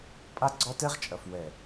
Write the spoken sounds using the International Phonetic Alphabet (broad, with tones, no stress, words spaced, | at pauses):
pʼa˦ɡ͡ǀɔ˦tɛ˦ʁ t͡ʃʼɐ˨fwɛ˨